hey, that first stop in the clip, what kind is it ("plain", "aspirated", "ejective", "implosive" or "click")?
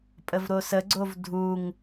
ejective